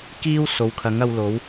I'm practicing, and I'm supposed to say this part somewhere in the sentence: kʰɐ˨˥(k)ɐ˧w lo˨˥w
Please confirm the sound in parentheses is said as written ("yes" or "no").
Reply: no